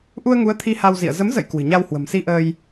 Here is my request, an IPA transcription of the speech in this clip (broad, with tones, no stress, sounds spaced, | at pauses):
ʔ u˧ ə̯ ŋ u˨˦ ə̯ t̪ʰ i˧ h a˧ w z ḭ˧˨ ə̯ z ə˨˦ m z ə̰˧˨ j k w ɨ̤˨˩ ɲ a˧ w h w ə̤˨˩ m s i˧ ʔ əː˧ j